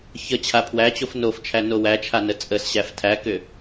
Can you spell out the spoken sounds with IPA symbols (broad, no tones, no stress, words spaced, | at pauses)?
çə t͡ɕʰapʰwæt͡ɕof noft͡ʃʰæ nowæt͡ʃʰa nət͡sʼəsɕæf tʰækʏ